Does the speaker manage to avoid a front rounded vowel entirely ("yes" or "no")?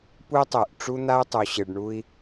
no